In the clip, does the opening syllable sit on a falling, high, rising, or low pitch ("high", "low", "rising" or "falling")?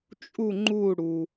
falling